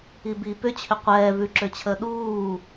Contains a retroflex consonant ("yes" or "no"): no